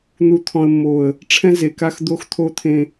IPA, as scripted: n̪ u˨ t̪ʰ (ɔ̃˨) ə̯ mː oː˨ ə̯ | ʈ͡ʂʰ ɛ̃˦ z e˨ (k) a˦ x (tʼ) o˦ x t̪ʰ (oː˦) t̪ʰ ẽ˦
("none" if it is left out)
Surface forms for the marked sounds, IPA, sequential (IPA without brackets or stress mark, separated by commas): ɔ̃˨, k, d̪, o˦